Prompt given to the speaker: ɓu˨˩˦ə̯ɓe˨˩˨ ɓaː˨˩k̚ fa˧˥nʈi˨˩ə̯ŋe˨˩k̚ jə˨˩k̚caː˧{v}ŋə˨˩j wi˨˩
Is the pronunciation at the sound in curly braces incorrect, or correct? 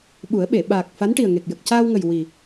incorrect